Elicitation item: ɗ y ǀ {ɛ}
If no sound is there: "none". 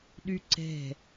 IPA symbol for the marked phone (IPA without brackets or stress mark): ɛ̤